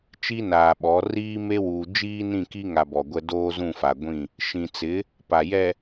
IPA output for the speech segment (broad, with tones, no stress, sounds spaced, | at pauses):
t͡ʃ i˦ n aː˨ ɓ ɔ˨˦ r iː˦ m e˦ w uː˨ d͡ʒ iː˦ n ĩ˦˨ k i˦ ŋ a˨ b ɔ˨ ɡʷ ɛ˦ d oː˦ z ũ˦˨ f a˨ ɡʷ ĩ˦˨ | ʃ ĩ˨ t͡s ɪ˨˦ | p a˨ j ɛ˨